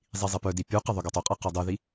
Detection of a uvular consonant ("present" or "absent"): present